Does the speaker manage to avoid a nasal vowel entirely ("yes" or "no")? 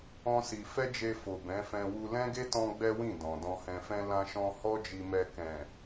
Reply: no